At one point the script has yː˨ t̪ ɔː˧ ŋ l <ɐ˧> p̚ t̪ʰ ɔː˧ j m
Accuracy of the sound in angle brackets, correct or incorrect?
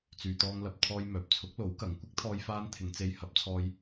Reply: incorrect